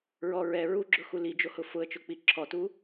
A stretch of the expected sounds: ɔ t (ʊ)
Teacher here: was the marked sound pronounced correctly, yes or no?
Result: no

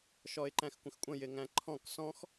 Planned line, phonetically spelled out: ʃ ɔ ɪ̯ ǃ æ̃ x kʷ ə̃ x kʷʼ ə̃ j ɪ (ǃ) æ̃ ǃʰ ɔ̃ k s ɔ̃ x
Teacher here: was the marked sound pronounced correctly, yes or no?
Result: no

